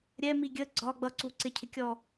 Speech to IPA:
ɾʲ ɛ m i ɡʲ ə ɡ͡ǀ ɒ ɡ͡b ʌ ǀ u ǀ ɪ cʰ ɪ kʲ ɔ

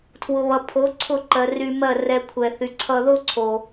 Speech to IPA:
tʰ w ʊ˨ β ʌ˨ pʰ o˨˦ ǀʰ ʊ˦˨ ǃ ɜ˨ r y˧ m ɜ˦˨ r ɛ˧ kʷʰ ɛ˨ θ y˨ ǀʰ ʌ˧ ð o˦ ǀʰ o˨

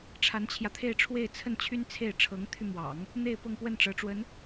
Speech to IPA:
ʈ͡ʂʰ a˧˥ n t͡ɕʰ j ä˧ t̪ʰ e˥˧ ɪ̯ ʈ͡ʂʰ w e˥˧ ɪ̯ t͡sʰ ə˥˩ n t͡ɕʰ y˥ n t͡sʰ e˥˩ ɪ̯ ʈ͡ʂʰ ɤ˧˥ ŋ t̪ʰ y˧ m w ɑ̰˨˩˦ ŋ | n̪ e˥˧ ɪ̯ p ɤ˥˧ ŋ p w ə˥˩ n ʈ͡ʂ ɤ˧˥ ʈ͡ʂ w ə˧˥ n

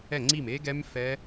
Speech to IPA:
ɛ˥˩ ŋ͡ǀ i˥˩ m e˦˥ ɡ ɛ˦˥ m f ɛ˦˥

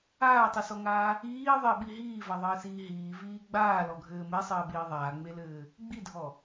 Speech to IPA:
aː tˤ i s ɔ ŋ aː | iː ðˤ e ɓ i ɦ iː v a ðˤ ɘː s iː ɦ iː v iː ɡ͡b aː l ɔ ɡʱ ɘː m e sˤ ɘː ɓ iː ðˤ aː ŋ͡m e l ɘː | ɡ͡b i dʱ ɔ

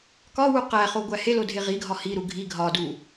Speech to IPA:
k ɒ w u q æ χ o ɡʷ æ h e l o dʱ e ʁ i ɡʱ ɒ h i ɾ u ɡʱ i ɡʱ ɒ d u

